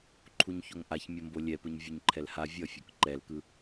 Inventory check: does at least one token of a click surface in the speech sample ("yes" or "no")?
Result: yes